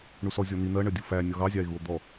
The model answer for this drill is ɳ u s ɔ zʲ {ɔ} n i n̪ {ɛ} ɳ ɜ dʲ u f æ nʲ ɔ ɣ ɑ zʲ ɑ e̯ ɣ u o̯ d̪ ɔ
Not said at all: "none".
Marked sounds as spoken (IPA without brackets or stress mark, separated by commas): ɔ, ɜ